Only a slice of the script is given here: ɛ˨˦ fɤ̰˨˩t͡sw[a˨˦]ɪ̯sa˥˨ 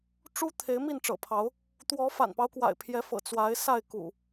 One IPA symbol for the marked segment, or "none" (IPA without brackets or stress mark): a˨˦